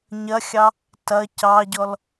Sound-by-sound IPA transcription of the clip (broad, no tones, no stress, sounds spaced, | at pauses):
ɲ ɐ xʲ ɑ | t ɐ c ɑ ɟ ɔ l